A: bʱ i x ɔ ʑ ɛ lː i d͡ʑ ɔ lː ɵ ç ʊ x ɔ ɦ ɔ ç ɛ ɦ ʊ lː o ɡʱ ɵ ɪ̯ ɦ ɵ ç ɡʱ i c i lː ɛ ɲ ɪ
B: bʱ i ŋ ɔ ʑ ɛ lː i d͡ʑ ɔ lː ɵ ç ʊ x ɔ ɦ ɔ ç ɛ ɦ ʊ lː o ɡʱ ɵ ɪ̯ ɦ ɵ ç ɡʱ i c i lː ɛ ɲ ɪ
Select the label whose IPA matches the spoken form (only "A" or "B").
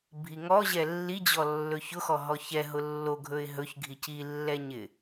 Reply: B